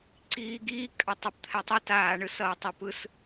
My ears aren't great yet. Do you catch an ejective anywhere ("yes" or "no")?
yes